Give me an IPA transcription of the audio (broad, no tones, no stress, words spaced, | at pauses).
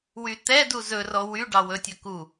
wyt̪ɛdu zɵrɔ wy ɖɑwɵtʲɵ ku